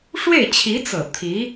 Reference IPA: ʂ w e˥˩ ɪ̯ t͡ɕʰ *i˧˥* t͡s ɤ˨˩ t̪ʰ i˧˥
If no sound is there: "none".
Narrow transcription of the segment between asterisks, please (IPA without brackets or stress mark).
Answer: i˧˥